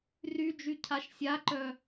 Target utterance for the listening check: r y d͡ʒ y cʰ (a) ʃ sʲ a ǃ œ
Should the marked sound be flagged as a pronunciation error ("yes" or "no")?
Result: no